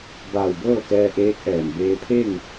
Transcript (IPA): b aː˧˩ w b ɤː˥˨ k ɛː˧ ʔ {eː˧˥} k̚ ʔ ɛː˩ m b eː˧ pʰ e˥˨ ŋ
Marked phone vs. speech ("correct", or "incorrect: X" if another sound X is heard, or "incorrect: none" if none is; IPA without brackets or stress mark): correct